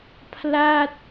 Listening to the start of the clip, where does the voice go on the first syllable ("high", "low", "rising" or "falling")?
falling